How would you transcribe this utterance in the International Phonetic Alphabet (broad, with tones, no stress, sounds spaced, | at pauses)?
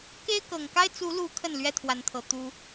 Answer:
k e˦ ɪ̯ k ɤ˨˩ ŋ k a˦ ɪ̯ t͡s u˨˦ l u˨˦ kʰ ə˥˨ n l ɥ ɛ˦ t̪ʰ w a˨˦ n t̪ʰ ɤ˨˩ t̪ u˦